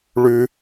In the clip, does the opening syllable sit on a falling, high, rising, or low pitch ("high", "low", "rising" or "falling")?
high